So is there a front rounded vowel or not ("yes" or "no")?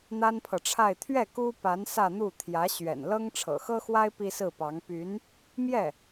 yes